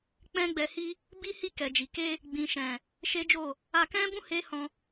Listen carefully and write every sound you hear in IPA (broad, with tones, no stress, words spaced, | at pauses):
k͡pɛ̃˦ɡ͡bɛ˧hi˦ | bi˦hi˦˨kɛ˨d͡ʒi˨ ke˧ | ɡ͡bĩ˨ʃɛ̃˨ | ʃe˦d͡ʒo˦˨ | a˧kɛ̃˦bũ˦ he˦hɔ̃˧